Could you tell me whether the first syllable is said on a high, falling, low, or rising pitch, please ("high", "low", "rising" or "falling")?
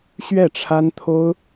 falling